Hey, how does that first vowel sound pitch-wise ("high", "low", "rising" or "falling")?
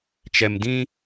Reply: low